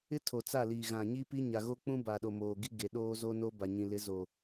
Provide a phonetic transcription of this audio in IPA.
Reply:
ɪ˦ tʰ o˨ t͡s a˦˨ l iː˨ ɣ ã˨ ɲ i˦ p i˦ ɲ a˨ ɣ o˦ k͡p ũ˦ b a˨ ɗ o˨ m oː˨ ɡ i˦ ɡ e˨ ɗ oː˦ z o˦ n o˦ b a˨ ɲ ĩ˨ l ɪ˨˦ z o˨

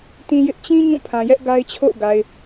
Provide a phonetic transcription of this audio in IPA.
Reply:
t ĩ˦ j ɪ˦ ʔ t͡ɕ ĩ˦ ɲ ũ˦˨ pʰ ã˨ j ɛ˦ ʔ ɡ a˦ ɪ̯ t͡ɕʰ o̰˦˨ ʊ̯ ɡ a˨ ɪ̯

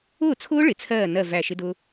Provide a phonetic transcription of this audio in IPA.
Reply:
ʊː˥˩ t͡sʰ ʊː˦˥ ɭ ɪ˩ t͡sʰ ɜː˧˩ n ɜ˥˩ v æ˧˩ ʃ ɪ˦˥ d ʊ˦˥

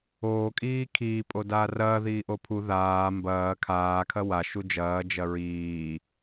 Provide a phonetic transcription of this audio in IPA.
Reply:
oː kʼ iː kʰ iː pʼ o d aː r ɐː ð iː ʔ o pʰ u ð aː m b ɐː kʰ aː kʰ ɐ w a ʃ u d͡ʒ ɐː d͡ʒ ɐ ɹ iː

